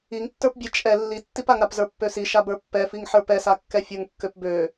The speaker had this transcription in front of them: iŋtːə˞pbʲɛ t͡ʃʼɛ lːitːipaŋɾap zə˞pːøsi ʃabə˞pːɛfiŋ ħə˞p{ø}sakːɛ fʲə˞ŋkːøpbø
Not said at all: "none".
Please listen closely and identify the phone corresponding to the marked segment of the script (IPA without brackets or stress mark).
ɛ